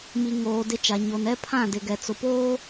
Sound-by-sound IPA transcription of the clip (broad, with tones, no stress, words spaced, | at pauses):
mi˨ ŋoː˨ dɪ˦t͡ʃa˨ ɲo˨n ɛ˦pʰã˦˨ dɪ˨ɡɛ˨t͡sʊ˨poː˦